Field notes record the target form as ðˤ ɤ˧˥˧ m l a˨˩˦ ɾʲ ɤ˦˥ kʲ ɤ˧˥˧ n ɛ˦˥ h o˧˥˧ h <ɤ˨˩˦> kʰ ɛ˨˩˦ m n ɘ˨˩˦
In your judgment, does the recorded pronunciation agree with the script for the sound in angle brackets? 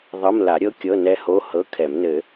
no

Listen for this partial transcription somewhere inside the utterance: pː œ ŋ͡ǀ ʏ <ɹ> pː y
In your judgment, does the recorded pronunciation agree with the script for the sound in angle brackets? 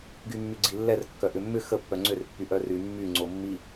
no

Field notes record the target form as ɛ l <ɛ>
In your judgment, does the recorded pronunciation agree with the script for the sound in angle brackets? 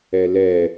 yes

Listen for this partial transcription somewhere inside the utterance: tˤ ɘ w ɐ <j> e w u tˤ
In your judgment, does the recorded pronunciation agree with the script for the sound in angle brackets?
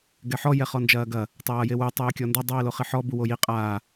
yes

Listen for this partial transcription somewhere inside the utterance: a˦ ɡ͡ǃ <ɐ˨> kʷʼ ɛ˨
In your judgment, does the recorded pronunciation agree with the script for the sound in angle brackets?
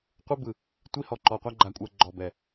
no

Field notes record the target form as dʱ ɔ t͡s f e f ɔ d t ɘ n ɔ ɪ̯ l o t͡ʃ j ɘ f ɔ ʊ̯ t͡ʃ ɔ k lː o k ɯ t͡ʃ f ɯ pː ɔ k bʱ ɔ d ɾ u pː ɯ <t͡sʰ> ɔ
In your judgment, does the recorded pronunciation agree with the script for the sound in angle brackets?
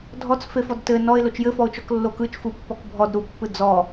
no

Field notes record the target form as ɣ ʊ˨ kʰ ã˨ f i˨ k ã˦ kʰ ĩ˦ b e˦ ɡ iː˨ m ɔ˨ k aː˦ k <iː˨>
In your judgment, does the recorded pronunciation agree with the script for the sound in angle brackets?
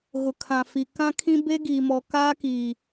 yes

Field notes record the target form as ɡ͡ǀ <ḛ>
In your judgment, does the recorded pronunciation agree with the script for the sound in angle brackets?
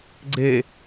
no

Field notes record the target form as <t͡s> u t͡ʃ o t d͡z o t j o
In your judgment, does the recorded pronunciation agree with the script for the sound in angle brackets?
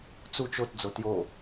yes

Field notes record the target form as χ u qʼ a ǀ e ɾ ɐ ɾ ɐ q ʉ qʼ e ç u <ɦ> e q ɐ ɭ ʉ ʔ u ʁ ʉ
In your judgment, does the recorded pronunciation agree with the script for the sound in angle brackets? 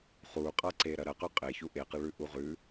no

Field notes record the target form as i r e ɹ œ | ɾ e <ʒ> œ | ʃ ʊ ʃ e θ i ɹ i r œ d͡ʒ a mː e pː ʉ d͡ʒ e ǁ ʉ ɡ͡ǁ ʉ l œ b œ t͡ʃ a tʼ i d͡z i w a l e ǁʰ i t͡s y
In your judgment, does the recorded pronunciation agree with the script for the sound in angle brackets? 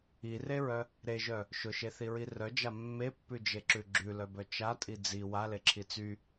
yes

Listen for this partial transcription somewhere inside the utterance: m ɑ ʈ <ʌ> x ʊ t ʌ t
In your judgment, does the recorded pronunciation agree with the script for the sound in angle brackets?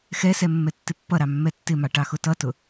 no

